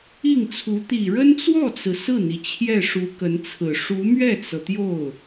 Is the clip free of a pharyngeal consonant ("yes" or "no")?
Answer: yes